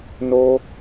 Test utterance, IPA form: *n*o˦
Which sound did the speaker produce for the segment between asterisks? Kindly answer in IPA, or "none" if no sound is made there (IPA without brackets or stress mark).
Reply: n